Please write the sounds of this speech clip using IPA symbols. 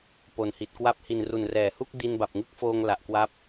p o˨˩ n h i˨˩ t̚ k w a˥˩ p̚ h i˨˩ n r u˨˩ n r ɛː˩˦ h u˥˩ k̚ d i˧ n b a˨˩ p̚ ŋ ɯ˥˩ k̚ f oː˧ ŋ l a˨˩ ʔ k w a˦˥ p̚

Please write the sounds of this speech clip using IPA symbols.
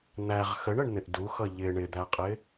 n̪ æ ʁ x ə ɳ ə ɳ n̪ ɪ ʔ d u x ʌ ʎ ɪ ɳ ɪ d̪ æ qʼ ɪ

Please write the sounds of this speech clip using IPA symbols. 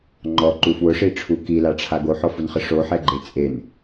ŋ͡ǃ ɔ ǃ u f w ʊ ʂ i ʈ͡ʂʰ u k i l a ʈ͡ʂʰ a ɡ o ħ ɔ f u n χ ɪ ʂ o ħ ɛ ɡ͡ǃ e t͡sʼ e n

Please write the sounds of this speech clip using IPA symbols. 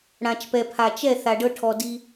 ɽ ã˨ t͡ʃ p ɛ˨ pʰ a˨ t͡ʃ ɛ˦˨ θ a˧ ɖ ɤ˦ ʈʰ ɔ˧ d i˧

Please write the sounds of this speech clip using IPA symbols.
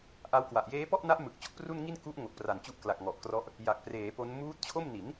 ʔ a˦˥ w k w a˨˩ ʔ j eː˦˥ p ɔ˥˩ ʔ n a˦˥ ʔ m ɯ˨˩ k̚ t͡ɕ o˥˩ k̚ p r u˥˩ n ŋ i˥˩ n k u˦˥ ʔ ŋ o˨˩ k̚ p r a˨˩ n t͡ɕ u˦˥ ʔ k l a˨˩ k̚ ŋ ɔ˨˩ ʔ k r ɔ˦˥ ʔ | j a˨˩ k̚ p r eː˩˦ p o˦˥ n m uː˦˥ t̚ t͡ɕʰ o˥˩ m n i˩˦ n

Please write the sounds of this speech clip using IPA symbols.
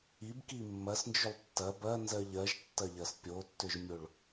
i b k i mː ɐ s n d͡ʒ ʏ lˠ tː ɐ b ɐ n z ɜ ʎ ɜ ʒ tː ɐ ʎ ɐ s pʲ o tː ʏ ʒ mʲ o ɭ

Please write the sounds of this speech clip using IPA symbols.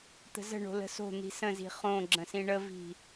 t̪ ə̤ z ə̤ ɳ o̤ l ə̤ s o̤ n̪ i̤ s ə̃ z i̤ χ õ ɡ͡ǁ ə̃ s ĩ ɳ ə v i̤

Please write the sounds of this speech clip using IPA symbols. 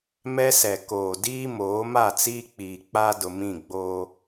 m ɛ˦ s ɛ˨ k oː˨ d iː˦ m oː˨˦ m a˦˨ t͡s iː˦ k͡p iː˨ k͡p a˦ d ʊ˨ m ĩ˦˨ ɡ͡b oː˦

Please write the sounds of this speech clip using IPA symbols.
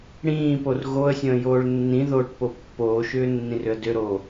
ɽ ĩː p o r ɣ o ə̯ sʲ ə̃ː j oː ɭ nː ĩ ð oː ʈ p o pː oː ʃ ʏː nː ĩ r ʏ ə̯ d ʏ ɾ o

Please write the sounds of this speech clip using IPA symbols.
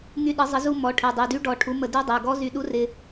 ŋ y˧ ɗ ə˨˩˦ zˤ ə˨˩˦ z u˧ m ɔ˩˥ ʈʰ e˩˧˩ dˤ y˩˧˩ d y˧˥ ɖ ɔ˨˩˦ ʈʰ u˩˥ m ə˧ d y˧˥ dˤ e˩˧˩ ɡ ɔ˧˥ z y˧ ɗ u˧˥ r ɪ˧

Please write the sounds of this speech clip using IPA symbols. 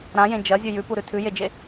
ɾ ã j ẽ d͡ʒ ɐ zʲ ʉ j ʉ p u ɾ ʉ tʰ ʉ j e d͡ʒ e

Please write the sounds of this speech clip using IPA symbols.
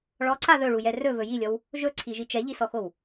ɭ ɔ ǀ a ð ɵ ɭ u j ɛ r ɵ v ɵ j i lʲ ɔ w | ʒ ɵ ǀʰ i ʒ i t͡ʃ ɛ ʎ i s ɔ x o w

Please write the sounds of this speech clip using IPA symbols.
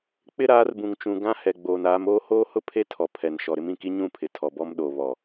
k͡p ɪ˦ ɾ aː˨˦ r b ũ˨ ŋ t͡ʃ ũ˨ ɡ ã˦ h ɛ˨ ɡ͡b oː˨ n aː˨˦ m oː˦ h oː˦ h ʊ˦ pʰ e˦ tʰ ɔ˨ pʰ ɛ˨ n ʃ ɔ˨ ɾ ɪ˦ m ĩ˨ k i˦ ɲ ũ˦˨ pʰ ɪ˨ tʰ ɔ˨ b ɔ˦ m ɗ o˨ β ɔ˨

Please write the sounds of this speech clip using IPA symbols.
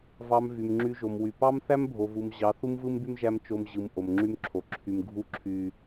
v ɑ˧ m v y˨ m ŋ͡ǁ y˧ ʒ o˨ m w y˨ p ɑ˦ m θ æ˦ m bʱ o˨ v u˨ m ʑ ɑ˨˦ θ u˦ m v ɯ˦ m b y˦ m ʒ æ˧ m t͡ʃ o˧ m ʑ ɯ˨ m ʔ o˨ m ŋ͡ǁ y˦ m ǁʰ o˨ ǁʰ y˨ m ɡʱ u˧ ǁʰ y˨

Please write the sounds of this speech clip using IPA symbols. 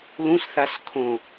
l ũ s θ a s kʰ õ

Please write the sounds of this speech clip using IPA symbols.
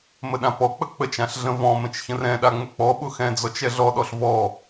m ə ɗ ã p ɔ k͡p ə k͡p ə t͡ʃ ã ɬ ɮ ə̃ v ɔ̃ m ə̃ t͡ʃ ç ə̃ r ɛ̃ ɗ a ŋ͡m ʊ k͡p ɔ ɓ ʊ x ɛ̃ d͡z ɔ t͡ʃ ɛ ɮ ɔ ɗ ɔ ɬ v ɔ

